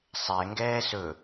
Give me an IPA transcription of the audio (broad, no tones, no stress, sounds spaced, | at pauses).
sˤ ɛ ŋ ɡ ɛː s ɵ